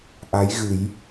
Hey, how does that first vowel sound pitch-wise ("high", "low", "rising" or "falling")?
rising